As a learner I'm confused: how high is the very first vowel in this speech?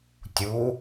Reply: high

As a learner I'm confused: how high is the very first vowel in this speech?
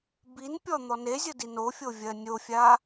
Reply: high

